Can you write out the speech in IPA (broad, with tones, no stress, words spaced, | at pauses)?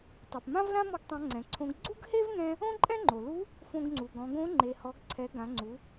tˤɛ˩pmã˥vlã˥ mɔ˥ɡtˤã˧˥ŋ͡ǀɛ̃˩˧ǀʰõ˧˥ɡ ɡ͡ǀu˥ɡhe˥vŋɛ̃˧ | õ˥ǃʼɛ̃˥ŋ͡ǃo˩lu˧˥ | fõ˧ɡŋ͡ǀu˩ ɡɔ̃˩˧ɡõ˧˥ ŋ͡ǃe˩hɔ˩˧ɡǀʰɛ˩˧ ɡã˩˧ŋ͡ǀu˩˧